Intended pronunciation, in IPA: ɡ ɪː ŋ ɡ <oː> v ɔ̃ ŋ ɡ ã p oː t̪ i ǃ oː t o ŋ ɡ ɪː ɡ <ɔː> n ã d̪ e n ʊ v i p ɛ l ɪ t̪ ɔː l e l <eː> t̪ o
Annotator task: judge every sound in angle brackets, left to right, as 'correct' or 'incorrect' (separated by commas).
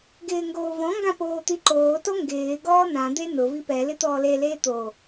correct, correct, correct